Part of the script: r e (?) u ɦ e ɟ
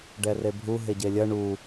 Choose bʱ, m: bʱ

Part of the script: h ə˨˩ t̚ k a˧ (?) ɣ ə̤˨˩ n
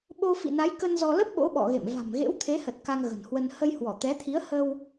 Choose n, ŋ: ŋ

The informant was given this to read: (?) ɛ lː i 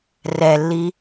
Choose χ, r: r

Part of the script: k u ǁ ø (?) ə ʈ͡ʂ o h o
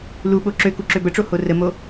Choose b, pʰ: b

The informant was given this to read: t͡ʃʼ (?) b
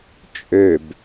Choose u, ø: ø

